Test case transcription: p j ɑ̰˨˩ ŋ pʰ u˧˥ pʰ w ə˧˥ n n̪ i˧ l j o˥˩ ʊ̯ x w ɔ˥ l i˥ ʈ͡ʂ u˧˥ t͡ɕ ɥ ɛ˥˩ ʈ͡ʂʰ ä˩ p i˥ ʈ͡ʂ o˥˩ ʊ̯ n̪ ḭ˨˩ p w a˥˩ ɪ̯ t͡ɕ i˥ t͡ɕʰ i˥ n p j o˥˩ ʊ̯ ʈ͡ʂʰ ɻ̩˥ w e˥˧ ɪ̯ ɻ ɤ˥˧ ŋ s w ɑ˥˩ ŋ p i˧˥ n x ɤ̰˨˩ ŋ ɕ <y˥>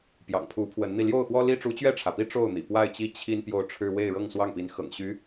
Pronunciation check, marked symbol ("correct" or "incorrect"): incorrect